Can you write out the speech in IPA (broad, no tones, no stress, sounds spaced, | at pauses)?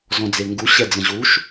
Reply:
z ɔ̃ d͡z e ŋ ɡ u ɕ ɛ d͡z ə̃ ʑ u ʃ